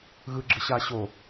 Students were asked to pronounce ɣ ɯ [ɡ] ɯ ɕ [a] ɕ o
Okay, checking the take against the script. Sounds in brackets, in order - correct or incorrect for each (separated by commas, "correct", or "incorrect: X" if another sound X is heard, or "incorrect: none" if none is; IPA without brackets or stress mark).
incorrect: ɡ͡ǁ, correct